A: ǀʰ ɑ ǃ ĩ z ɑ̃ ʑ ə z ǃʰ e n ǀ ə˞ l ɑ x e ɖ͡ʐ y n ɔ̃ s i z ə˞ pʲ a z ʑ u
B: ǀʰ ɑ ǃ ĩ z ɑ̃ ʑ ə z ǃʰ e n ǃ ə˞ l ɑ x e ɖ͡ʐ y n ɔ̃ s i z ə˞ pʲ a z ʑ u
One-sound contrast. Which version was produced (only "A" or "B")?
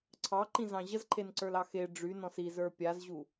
A